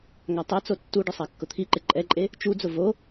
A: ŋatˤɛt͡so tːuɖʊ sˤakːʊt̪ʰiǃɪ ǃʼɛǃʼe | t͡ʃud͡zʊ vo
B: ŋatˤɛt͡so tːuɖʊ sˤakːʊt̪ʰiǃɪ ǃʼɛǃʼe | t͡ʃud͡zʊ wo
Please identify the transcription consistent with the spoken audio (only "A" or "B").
A